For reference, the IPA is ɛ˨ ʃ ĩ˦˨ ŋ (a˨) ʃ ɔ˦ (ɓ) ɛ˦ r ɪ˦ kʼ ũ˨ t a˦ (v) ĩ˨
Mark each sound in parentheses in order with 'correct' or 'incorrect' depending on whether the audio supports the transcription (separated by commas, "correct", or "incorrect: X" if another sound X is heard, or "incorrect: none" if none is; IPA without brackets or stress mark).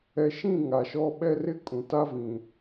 correct, correct, correct